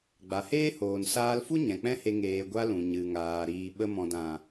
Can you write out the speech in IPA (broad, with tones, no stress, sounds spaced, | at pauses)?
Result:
ɡ͡b a˨ h eː˦ h oː˨ n s aː˧ l f u˦ ɲ ɛ̃˨ k͡p ɛ̃˦ h e˧ ŋ eː˨ ɡʷ a˧ l ũ˨ ɲ ɨ˨ ŋ aː˨ ɾ iː˨ ɓ ə˧ m ɔ̃˨ d ã˨